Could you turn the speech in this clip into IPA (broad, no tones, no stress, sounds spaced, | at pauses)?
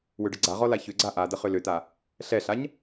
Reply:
w ʏ ɖ ə ɡ͡ǀ a ʁ ɔ l a ç ʏ ɡ͡ǀ a ʔ a d ə χ ʏ l ʏ t a | ɬ ɛ ɬ a ɲ